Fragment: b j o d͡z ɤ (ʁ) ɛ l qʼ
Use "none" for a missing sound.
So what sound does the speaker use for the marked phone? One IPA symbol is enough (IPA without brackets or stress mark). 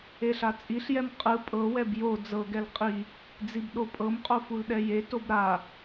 ɡ